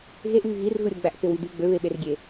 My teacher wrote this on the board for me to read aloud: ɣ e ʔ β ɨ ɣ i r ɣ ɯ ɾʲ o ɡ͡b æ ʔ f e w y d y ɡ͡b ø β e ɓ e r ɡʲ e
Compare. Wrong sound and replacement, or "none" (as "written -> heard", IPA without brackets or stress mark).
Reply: ɨ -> y